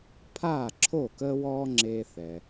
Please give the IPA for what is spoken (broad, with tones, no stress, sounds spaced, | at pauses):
pʰ aː˥˩ ǁʰ o˥˩ k əː˥ w ɔː˥ ŋ͡ǁ eː˧ θ ɛ˩